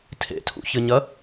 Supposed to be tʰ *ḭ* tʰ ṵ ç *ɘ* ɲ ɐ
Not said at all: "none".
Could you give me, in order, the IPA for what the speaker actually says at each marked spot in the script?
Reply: ḛ, ɘ

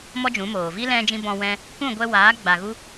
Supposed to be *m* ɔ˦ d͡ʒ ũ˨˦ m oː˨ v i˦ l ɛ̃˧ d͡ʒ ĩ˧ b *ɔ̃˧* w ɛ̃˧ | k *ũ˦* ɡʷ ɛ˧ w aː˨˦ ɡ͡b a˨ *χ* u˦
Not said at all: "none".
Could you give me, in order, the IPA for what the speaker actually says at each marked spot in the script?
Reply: m, ɔ̃˧, ũ˦˨, ɣ

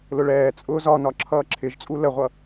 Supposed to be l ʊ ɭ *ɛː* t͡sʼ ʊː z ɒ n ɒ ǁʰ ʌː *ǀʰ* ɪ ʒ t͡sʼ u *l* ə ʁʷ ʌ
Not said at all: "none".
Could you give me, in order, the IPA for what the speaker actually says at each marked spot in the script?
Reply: ɛː, ǁʰ, l

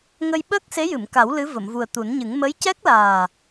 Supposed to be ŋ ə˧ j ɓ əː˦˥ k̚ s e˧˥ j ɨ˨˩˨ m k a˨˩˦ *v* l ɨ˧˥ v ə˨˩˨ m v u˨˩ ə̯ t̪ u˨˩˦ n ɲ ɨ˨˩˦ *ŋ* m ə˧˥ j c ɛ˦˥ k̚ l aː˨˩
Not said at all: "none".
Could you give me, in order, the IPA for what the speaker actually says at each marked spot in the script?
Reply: w, ŋ

